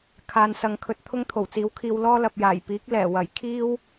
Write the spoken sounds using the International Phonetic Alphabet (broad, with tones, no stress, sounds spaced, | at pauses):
kʰ aː˨ n s ɐ˨˧ ŋ kʰ ɵ˨ t̚ t̪ʰ ʊ˥ ŋ t̪ʰ o˨˩ w t͡s iː˨˥ w kʰ iː˧ w l ɔː˥ l ɐ˨ p̚ j aː˨˩ j p iː˨˥ k̚ l ɛː˨˩ w ɐ˨˩ j kʰ iː˥ w